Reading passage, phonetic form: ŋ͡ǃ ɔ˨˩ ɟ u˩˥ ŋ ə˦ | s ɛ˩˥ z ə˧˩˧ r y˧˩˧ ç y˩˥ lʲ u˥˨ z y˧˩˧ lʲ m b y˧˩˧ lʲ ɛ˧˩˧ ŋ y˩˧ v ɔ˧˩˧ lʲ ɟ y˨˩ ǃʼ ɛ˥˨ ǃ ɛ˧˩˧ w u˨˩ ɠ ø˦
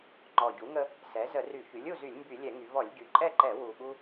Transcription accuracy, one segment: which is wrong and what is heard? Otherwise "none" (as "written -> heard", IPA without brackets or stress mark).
ø˦ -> u˦